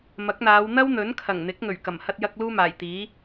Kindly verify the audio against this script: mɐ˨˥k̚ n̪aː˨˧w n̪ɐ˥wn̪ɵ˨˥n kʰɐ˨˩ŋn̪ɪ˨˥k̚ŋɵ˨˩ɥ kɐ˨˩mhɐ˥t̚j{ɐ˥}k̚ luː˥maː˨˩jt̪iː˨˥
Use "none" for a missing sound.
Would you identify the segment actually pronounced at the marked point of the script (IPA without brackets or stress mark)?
ɐ˥